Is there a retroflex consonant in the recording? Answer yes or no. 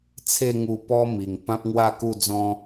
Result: no